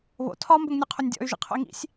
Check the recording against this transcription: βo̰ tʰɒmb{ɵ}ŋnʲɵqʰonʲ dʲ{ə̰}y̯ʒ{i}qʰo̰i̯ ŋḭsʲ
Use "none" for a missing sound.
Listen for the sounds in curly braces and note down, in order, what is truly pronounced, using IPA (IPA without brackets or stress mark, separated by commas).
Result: ɵ, ɔ̰, ḭ